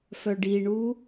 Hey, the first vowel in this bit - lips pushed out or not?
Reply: yes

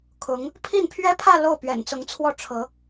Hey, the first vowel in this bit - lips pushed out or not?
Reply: yes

